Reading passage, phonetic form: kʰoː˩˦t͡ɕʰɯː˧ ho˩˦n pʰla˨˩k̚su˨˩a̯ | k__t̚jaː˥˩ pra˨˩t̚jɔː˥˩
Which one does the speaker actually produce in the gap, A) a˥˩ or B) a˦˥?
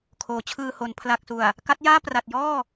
B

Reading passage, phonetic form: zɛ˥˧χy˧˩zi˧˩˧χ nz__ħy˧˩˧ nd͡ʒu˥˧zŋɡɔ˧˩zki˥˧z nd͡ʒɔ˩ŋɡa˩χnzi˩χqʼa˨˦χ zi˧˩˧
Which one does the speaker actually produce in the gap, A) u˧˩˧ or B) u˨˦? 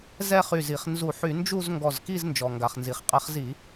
A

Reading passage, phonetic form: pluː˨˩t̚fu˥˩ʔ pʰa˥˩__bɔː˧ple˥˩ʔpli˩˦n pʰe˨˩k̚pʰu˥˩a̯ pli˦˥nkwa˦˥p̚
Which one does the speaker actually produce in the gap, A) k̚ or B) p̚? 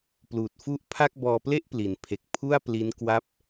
A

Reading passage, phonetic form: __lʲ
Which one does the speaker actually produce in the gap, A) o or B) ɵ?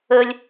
B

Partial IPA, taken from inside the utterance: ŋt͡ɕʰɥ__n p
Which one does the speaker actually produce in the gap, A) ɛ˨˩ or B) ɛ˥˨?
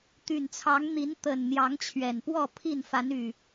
A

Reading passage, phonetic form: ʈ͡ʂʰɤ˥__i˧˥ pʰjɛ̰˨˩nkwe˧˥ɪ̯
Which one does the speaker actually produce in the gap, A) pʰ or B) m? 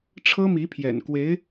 B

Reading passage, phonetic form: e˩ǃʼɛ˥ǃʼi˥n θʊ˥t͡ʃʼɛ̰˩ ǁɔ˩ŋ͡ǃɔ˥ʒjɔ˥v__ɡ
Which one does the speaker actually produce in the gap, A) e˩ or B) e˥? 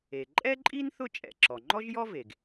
A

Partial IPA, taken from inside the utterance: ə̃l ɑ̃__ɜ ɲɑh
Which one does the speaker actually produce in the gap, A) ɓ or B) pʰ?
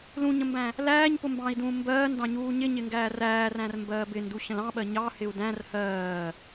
A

